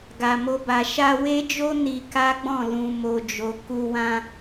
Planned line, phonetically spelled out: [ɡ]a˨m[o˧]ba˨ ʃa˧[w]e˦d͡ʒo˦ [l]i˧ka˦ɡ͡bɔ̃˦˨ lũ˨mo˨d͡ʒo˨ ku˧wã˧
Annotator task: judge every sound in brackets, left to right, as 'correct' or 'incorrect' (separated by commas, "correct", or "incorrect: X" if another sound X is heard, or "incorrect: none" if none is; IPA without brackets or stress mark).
correct, correct, correct, incorrect: n